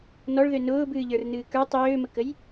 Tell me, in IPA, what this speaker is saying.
n ɔ ɭ ð ø n ʊː b ɨː ʎ ə˞ r n ɨː k ə˞ tˤ øː m ə k ə j

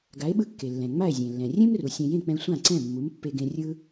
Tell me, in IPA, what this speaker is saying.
ɡ a˩˥ e̯ ɓ ɯ˧ kː e˩ lː ɛ̃˩ ŋ͡m a˥˩ e̯ zʲ ẽ˩ lː ɛ̃˩ rʲ ẽ˥ m r u˩ sʲ ɛ̃˧ j ẽ˥˩ k͡p ɛ̃˧ sʷ ã˥˩ ǀ ɛ̃˥˩ mː u˩˥ m pː e˧ ɡ ẽ˧ rʲ ɯ˥

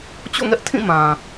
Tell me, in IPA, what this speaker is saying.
t͡ɕ o̰˦˨ ŋ ɛ˦ ʔ tʰ ĩ˦˨ m ã˨

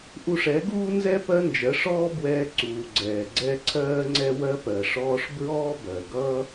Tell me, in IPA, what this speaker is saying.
ʔ u˧ ʂ ɛ˨˦ ɡ uː˦ n z ɛ˦ p ɜ˦ n d͡ʒ ɜ˨˦ ʂ ɔː˦ b w ɛː˧ ǀ uː˨ ɡ͡ǀ ɛː˨ ɡ͡ǀ ɛ˦ ǀʰ ɜː˦ ŋ͡ǀ ɛ˦ w ɜ˦ p ɜ˨ ʂ ɔː˧ ʂ b ɹ ɔː˦ b ɜ˨ ɡ ʌː˦

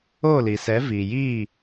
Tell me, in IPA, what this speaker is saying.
o˦˨ l i˨ s ɛ˨˦ v iː˨ j iː˦˨

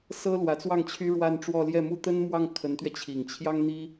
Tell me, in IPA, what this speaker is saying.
s ɤ˥ l w ä˧˥ t͡s w ɑ˥˩ ŋ t͡ɕʰ y˥ ɻ w a˥˧ n ʈ͡ʂ w ɔ˥˧ l j ɛ˥˩ m u˥ t̪ ə˥ n m w ɑ˥˩ ŋ kʰ ə˧˥ n t̪ ɥ ɛ˧ t͡ɕʰ i˨˩ ŋ t͡ɕʰ j ɑ˥ ŋ n̪ i˥

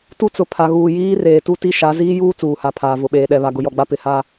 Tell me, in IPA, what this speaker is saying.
t u˦ t͡s ʊ˨ pʰ a˨ ɣ uː˨ j iː˦ r eː˨ t u˦ t i˦ ʃ a˨˦ z iː˦ j uː˦ t͡s uː˨ h a˨ pʰ aː˨ v ʊ˨ ɓ eː˨ ɗ ɛ˨ β a˨ ɡ ʊ˨ j ɔ˨ ɡ͡b a˦ p ɪ˨ h a˦

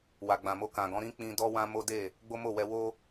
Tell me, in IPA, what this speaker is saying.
w a˨ ɡ͡b ã˨ m o˧ k ã˨ ɡ ɔ̃˨˦ ɾ ĩ˦ k͡p ĩ˧ d ɔ˦ w ã˦ m o˦ d e˦˨ | ɡ͡b o˦ m o˦˨ w ɛ˧ w o˦

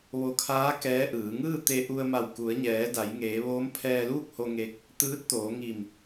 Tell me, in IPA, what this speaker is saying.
ʋ o˧ kʰ aː˧˥ k ɛː˧˥ ʔ ɯː˩˧ ŋ ɯː˥˨ t̪ e˧ ʔ u˧ ə̯ m a˧˩ w k u˩˧ ə̯ ɲ ɛː˩˧ d a˩˧ j ŋ eː˩˧ ʋ oː˧˥ m pʰ ɛː˧ l uː˥˨ k̚ h o˧ ŋ e˧ k̚ | t̪ ɯː˧˥ t̚ t̪ oː˩˧ ŋ i˧˩ m

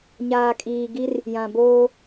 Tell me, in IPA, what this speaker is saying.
ɲ aː˨ kʼ iː˨ ɡ i˦ r | j ã˨ b oː˦

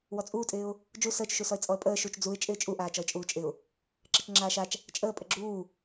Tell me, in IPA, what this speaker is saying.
w ɔ t͡sʼ uː tʼ ɪː ʊ̯ | d͡ʒ u s əː t͡ʃ ʃ u s ɔ ɪ̯ t͡sʼ ɔ ə̯ pʼ əː ʃ u t͡ʃ d͡z u ɪ̯ t͡ʃʼ ɪː t͡ʃʼ u ʔ aː t͡ʃ ɔ ɪ̯ t͡ʃʼ uː t͡ʃʼ ɪ ʊ̯ | ǁ ɪ t͡ʃ ŋ͡ǁ aː ʃ a t͡ʃ | t͡ʃʼ əː pʼ ə ɡ͡ǁ uː

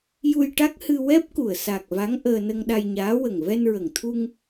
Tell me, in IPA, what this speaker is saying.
j u˧ j ʈ a˦˥ k̚ h ɨ˧ w ɛ˦˥ p̚ k u˨˩ ə̯ s a˨˩ k̚ v a˧˥ ŋ ʔ əː˧ n ə˧ ŋ ɗ a˧ j ɲ aː˧˥ w ə˨˩ ŋ v ɛ˧ n ɹ ə˨˩ ŋ t̪ʰ u˧ ŋ

